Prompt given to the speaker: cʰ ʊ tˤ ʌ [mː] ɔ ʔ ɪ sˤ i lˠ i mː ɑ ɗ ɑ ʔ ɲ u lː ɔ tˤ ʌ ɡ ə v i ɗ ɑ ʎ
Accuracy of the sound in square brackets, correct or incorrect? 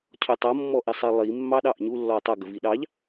correct